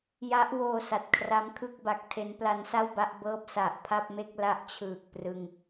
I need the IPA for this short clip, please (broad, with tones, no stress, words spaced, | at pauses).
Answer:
ja˦˥ʔwoː˧ sa˨˩t̚kʰra˦˥mkʰɯ˥˩k̚ba˨˩k̚ tʰe˦˥npla˦˥nsa˥˩wba˥˩ʔ bɤː˥˩p̚ sa˨˩ʔpʰa˥˩p̚me˥˩k̚ la˦˥ʔt͡ɕʰɯː˨˩k̚ prɯ˧ŋ